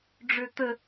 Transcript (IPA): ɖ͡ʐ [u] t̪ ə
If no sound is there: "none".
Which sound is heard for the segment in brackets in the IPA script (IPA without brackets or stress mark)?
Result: ø